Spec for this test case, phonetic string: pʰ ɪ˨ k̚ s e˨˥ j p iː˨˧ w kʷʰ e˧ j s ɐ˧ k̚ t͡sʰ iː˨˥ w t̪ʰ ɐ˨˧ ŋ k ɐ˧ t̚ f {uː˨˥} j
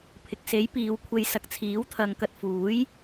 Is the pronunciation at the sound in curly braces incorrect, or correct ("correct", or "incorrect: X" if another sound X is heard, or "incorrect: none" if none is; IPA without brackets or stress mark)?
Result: correct